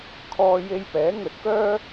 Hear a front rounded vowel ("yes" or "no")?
yes